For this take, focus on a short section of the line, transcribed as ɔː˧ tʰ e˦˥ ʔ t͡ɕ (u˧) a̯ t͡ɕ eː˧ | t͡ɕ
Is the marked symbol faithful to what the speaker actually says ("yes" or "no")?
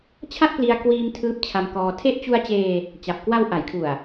yes